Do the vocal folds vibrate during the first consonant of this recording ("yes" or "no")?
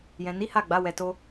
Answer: yes